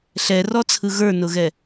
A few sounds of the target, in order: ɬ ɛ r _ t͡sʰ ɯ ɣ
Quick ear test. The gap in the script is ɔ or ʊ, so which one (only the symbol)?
ɔ